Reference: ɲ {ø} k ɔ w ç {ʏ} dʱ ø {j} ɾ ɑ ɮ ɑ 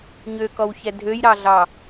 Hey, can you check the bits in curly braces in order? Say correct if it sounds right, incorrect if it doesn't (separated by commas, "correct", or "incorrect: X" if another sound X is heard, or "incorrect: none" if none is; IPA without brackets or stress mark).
correct, incorrect: ɛ, correct